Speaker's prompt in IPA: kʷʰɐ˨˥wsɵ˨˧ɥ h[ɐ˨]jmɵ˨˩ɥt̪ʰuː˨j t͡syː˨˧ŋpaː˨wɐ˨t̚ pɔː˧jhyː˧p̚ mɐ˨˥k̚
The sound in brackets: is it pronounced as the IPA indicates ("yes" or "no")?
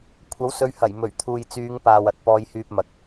no